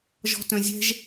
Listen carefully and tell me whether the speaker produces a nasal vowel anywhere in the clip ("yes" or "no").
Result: yes